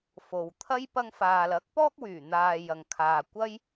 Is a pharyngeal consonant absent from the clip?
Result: yes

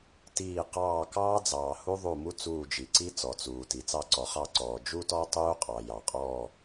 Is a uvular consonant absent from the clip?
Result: no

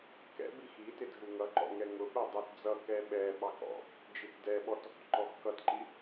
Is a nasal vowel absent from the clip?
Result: yes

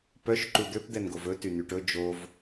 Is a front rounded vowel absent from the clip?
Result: no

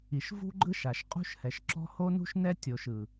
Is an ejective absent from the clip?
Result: no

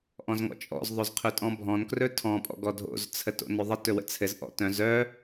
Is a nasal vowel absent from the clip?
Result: no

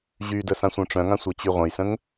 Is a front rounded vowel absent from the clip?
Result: no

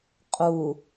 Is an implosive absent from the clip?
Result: yes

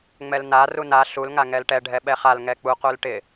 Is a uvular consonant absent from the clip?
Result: no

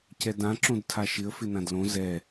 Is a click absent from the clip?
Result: no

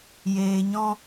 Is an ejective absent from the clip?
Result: yes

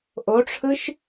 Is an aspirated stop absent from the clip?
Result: no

